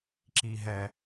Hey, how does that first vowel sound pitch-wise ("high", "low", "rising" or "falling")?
low